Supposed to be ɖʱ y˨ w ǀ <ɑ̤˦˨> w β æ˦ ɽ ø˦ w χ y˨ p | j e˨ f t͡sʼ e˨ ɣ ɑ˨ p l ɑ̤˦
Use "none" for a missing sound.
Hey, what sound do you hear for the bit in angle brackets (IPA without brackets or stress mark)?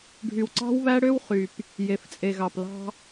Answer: ɑ̤˦